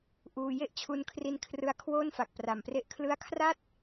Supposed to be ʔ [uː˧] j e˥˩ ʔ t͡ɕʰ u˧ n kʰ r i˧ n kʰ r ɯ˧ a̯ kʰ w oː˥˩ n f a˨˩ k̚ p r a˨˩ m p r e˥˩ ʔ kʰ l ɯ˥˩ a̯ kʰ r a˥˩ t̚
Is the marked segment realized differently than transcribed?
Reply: no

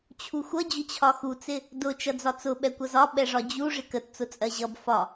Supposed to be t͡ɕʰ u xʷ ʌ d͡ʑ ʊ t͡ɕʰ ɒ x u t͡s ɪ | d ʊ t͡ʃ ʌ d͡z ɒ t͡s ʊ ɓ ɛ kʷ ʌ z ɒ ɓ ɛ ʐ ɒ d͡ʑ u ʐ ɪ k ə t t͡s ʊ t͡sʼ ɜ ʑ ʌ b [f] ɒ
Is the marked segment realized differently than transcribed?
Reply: no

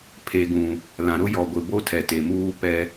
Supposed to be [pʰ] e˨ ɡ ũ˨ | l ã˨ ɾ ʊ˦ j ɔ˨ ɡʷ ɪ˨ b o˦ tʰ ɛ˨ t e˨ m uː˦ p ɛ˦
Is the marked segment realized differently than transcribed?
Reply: no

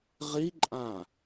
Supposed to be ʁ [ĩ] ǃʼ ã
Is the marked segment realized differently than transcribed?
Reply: yes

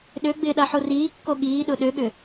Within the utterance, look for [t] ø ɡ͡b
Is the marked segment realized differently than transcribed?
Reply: yes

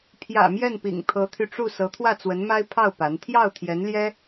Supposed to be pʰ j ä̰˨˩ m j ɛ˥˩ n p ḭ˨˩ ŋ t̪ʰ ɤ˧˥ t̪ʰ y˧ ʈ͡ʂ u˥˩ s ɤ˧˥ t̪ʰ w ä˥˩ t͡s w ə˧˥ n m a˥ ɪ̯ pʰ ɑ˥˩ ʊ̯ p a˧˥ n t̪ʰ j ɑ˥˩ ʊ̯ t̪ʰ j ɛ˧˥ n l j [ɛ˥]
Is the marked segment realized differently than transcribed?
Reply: no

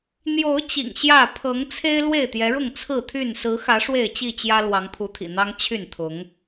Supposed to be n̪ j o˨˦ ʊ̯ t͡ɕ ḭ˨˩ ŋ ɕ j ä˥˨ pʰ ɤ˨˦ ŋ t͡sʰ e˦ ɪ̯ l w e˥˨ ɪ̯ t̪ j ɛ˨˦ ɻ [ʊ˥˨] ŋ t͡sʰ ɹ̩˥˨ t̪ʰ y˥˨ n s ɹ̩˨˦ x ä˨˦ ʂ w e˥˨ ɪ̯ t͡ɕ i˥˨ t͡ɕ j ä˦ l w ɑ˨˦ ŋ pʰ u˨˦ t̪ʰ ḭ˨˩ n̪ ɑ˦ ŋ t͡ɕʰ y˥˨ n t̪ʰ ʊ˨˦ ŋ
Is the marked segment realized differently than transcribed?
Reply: no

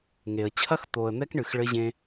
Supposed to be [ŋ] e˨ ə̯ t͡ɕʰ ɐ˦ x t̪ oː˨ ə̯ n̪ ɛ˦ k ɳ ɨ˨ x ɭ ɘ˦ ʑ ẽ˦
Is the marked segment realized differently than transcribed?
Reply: no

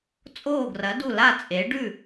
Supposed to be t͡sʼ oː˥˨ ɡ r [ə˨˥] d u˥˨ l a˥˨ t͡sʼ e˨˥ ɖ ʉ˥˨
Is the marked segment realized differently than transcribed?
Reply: yes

